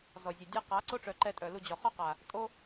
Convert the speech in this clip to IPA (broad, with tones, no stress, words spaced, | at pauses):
zɔ˨zʲɛ˨dʲa˦ qa˨˦ ǀo˦ʈ͡ʂœ˨ ǃɛ˧tʼœ˨lu˧ d͡ʑɔ˨χɔ˦qa˨ | tʼo˦